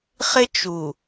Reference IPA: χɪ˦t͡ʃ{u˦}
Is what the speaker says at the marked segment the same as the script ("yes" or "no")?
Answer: no